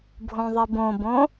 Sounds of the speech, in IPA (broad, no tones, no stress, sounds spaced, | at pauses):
bʱ õ ðˤ i b õ b õ